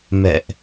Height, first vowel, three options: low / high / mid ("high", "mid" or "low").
mid